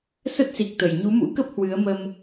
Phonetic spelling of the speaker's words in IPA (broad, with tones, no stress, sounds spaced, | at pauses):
s ə˦˥ t̚ s i˨˩ k̚ t̪ ə˨˩ j ɲ u˨˦ m ṵ˧˥ k ə˦˥ p̚ h w ɨ˨˦ ə̯ m ə˧ m